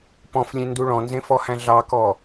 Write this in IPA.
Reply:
p ɔ̃ f lʲ ẽ n d u ɭ ɔ̃ n z ẽ f ɔ h æ̃ ɮ ɑ k ɔ

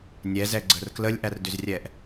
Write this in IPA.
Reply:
nʲ ɛ z ɛ ɡ͡ǀ ə r k l ə lʲ ʔ æ r d ʏ z rʲ ɛ ʔ

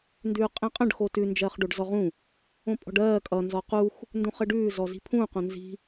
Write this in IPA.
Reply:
n d ʉː qʼ ĩ qʼ ə̃ ɖ x o t ʉ n d͡ʒ ɜː χ ɖ o ɖ z ɔ ʁ ũ | õ pʼ ɔ̤ ɖ ɜː kʼ ʌ n z ɔ q u x | n d ũ χ ə ɖ ʉː z ɔ z i̤ pʰ ũ q õ n z i̤

